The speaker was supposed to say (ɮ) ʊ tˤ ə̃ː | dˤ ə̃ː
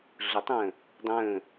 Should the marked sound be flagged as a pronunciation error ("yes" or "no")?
no